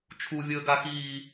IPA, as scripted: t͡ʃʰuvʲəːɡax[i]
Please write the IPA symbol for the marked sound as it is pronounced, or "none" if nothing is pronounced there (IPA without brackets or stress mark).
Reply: iː